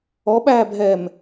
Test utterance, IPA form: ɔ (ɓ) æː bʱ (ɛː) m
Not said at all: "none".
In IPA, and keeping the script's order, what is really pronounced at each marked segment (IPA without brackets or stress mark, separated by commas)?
ɓ, ɛː